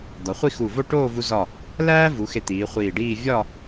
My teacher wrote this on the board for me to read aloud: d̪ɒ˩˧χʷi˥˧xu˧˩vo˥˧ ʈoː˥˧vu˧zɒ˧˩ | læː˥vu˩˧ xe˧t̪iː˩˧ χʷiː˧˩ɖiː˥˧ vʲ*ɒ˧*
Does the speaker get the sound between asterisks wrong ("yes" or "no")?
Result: yes